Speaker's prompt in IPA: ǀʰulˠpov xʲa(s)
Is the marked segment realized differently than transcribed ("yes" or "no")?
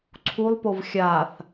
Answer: yes